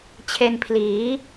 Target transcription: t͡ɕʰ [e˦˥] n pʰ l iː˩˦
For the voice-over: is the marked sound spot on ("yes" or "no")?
no